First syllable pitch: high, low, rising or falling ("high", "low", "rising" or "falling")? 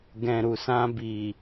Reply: low